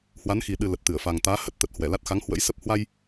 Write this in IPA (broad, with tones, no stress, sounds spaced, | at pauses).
h w a˨˦ n x i˨˩ ɗ ɨ˨˩ l ə˨˩ t̚ t̪ ɨ˧˩ ə̯ f a˨˩ ŋ t̪ aː˨˦ h ə˦˥ t̚ t̪ ə˨˩ t̚ h w ɛ˧˩ l a˦˥ t̚ x a˨˦ ŋ h w ə̰˧˥ j s ə˦˥ p̚ h w a˧ j